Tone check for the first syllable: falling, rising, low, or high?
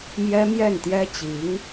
high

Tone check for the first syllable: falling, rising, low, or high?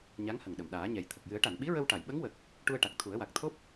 rising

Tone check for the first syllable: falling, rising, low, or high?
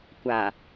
low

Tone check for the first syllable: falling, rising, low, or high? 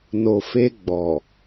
low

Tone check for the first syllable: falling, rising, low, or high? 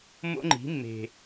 high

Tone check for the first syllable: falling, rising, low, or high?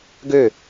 falling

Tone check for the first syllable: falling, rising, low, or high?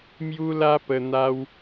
high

